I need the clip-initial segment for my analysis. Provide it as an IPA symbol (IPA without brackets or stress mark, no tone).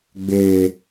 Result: ɡ͡b